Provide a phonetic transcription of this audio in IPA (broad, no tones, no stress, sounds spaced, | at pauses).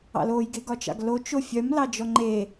ɑ̰ l o j ɡ e ɡ ɒ t͡ʃ ɑ̰ ɡ l o t͡ʃ o fʲ œ m l ɑ d͡ʒ ɔ ŋ͡ǃ e